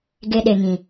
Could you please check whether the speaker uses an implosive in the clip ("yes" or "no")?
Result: yes